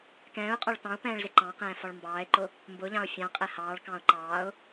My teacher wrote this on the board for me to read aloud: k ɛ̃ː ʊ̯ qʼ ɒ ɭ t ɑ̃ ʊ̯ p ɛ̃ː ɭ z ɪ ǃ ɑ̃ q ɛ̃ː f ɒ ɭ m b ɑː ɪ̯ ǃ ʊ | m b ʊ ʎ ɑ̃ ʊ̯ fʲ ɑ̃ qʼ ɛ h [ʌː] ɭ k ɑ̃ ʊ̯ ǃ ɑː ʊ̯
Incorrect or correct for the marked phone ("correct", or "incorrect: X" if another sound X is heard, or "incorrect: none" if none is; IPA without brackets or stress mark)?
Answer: incorrect: ɑː